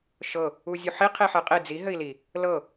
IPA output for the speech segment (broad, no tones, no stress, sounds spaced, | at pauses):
ʃ ɤ | u zʲ u ħ i qʰ i ħ ɘ qʼ i d͡z i ɦ ɘ i̯ l i | l ɤ